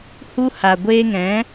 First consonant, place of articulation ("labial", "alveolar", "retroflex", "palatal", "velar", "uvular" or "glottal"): glottal